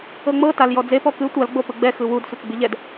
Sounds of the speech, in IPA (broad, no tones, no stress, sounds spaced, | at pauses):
ɤ ŋ͡m ɤ t a l j ɔ d͡z e p ɔ k ɯ tʷ a l ɡ͡b o p ɯ ɡ͡b ɛ x ɯ w u d sʷ e t͡s ɡ͡b i ʎ ɛ d